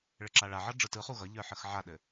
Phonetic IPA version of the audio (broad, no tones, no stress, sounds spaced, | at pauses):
ɭ ɘ ǁ a ɭ a ʕ ʌ ɖ͡ʐ ɯ t ɯ χ u ɣ ʌ ʎ ə˞ ħ ə x ʕ a ɗ ɘ